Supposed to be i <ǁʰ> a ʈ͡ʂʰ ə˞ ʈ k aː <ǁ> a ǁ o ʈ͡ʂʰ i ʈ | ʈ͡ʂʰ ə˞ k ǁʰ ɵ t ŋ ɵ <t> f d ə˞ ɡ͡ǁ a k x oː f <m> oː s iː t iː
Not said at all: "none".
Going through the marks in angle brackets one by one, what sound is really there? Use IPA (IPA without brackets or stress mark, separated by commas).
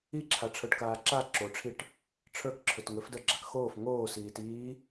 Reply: ǁʰ, ǁ, none, ŋ